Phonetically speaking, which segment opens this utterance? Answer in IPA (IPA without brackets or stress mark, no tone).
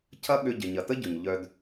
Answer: cʰ